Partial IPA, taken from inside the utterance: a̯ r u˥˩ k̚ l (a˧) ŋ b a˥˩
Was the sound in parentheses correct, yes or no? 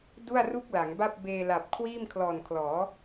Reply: no